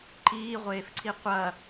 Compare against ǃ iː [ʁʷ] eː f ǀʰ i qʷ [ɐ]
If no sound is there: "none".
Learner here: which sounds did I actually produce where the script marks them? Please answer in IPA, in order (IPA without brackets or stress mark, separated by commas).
ʁʷ, ɐ